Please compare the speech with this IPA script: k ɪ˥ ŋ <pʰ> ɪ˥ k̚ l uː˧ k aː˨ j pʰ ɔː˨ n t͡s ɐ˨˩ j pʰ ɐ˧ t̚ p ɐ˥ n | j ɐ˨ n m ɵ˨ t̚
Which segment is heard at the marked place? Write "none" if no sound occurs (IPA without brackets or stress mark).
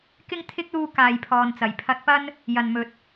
t̪ʰ